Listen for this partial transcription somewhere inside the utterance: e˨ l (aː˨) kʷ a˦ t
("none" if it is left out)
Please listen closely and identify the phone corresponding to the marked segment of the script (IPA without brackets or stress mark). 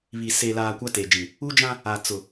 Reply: aː˨